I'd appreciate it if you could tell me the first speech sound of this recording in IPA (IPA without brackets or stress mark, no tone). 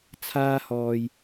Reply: t͡sʰ